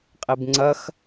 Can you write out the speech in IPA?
qʼ i b ŋ͡ǀ ɐ x

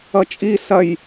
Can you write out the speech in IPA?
ʌ t͡ʃʼ i s ɐ j

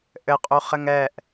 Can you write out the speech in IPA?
ʔ ɘ qʼ u χ ɘ ŋ ɛ ʔ

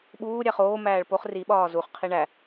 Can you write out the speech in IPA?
ɓ uː ɾʲ æ χ oː m æː ɭ p o χ r i ɓ ɒː z u χ qʰ i ɳ æ

